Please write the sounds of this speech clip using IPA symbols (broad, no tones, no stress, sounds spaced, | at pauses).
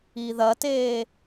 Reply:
i ð ɐ t eː